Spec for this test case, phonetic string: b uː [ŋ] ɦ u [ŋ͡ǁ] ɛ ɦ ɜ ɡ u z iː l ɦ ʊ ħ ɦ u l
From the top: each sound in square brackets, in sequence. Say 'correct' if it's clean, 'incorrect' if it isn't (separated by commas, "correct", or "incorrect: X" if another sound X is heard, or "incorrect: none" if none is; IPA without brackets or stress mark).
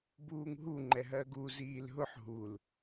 correct, incorrect: ŋ͡ǃ